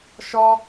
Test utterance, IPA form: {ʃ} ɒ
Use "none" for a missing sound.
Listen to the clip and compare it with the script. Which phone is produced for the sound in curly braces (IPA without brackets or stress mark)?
ʃ